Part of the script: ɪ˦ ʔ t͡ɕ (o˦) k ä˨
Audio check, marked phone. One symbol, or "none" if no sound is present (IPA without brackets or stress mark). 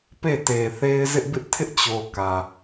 o˨